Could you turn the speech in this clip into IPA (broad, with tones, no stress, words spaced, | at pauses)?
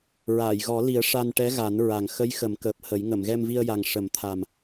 ɹaː˨˩˨jɣɔ˨˩˦li˨˩˦ə̯ ʂa˧nʈɛ˧˥ɣa˨˩˦n ɹa˨˩ŋ xə˧˥jxə˨˩˦m kəː˨˩p̚hə˨˩˦j ŋə˨˩˨mɣɛ˧mvi˧ə̯ja˨˩ŋ ʂə˨˩˦mt̪ʰa˨˩m